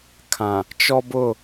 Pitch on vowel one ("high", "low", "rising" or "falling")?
low